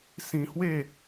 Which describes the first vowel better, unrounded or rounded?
unrounded